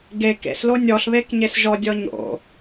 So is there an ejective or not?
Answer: no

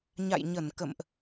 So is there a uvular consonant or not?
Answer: no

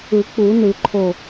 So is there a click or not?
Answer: yes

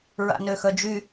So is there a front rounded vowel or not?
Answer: yes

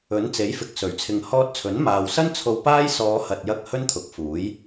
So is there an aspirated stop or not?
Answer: yes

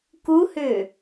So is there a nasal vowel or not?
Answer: no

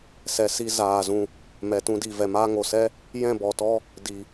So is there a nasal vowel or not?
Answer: yes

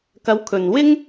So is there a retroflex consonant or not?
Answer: no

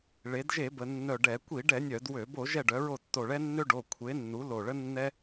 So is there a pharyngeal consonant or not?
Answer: no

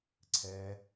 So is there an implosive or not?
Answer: no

